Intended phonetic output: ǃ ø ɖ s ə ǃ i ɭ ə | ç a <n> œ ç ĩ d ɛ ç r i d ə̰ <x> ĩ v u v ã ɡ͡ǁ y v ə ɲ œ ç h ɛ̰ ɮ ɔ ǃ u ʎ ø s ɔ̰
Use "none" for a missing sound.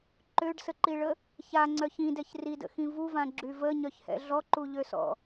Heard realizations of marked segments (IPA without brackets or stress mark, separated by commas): ŋ͡ǀ, x